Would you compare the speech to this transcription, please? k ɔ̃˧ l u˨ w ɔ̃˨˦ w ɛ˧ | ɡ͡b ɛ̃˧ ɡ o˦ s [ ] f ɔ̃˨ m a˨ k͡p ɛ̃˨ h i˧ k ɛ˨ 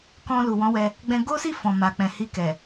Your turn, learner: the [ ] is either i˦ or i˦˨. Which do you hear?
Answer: i˦˨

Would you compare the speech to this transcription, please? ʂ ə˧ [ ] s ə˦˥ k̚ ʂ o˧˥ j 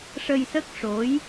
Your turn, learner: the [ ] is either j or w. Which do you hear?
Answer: j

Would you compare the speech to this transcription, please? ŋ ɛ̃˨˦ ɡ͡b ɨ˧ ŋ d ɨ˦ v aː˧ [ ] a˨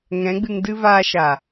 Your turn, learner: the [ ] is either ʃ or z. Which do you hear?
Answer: ʃ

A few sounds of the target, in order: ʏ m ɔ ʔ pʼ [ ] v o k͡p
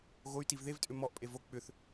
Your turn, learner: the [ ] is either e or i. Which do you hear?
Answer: e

